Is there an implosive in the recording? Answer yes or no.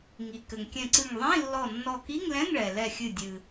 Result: no